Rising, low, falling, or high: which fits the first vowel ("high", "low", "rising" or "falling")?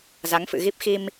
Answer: rising